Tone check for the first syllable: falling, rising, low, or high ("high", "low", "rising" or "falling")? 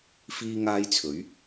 high